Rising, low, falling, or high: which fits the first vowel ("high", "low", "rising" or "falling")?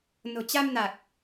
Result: low